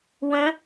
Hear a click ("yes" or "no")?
no